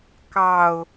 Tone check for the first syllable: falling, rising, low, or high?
low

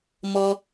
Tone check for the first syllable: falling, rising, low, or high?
low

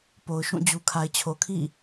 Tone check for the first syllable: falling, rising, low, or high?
low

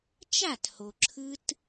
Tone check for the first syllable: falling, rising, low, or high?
falling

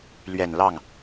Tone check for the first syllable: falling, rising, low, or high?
low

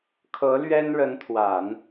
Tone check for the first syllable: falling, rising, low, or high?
rising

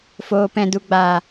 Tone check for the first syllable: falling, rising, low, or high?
low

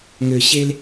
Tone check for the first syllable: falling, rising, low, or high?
low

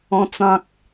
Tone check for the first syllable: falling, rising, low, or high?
high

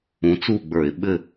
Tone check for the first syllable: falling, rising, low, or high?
rising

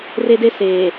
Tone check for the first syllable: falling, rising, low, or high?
high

